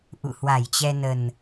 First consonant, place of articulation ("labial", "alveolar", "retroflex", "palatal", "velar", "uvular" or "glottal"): glottal